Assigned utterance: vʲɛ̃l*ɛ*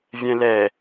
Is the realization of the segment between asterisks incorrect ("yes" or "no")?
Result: no